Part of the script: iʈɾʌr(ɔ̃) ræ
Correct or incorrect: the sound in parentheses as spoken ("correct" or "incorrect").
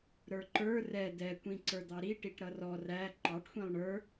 incorrect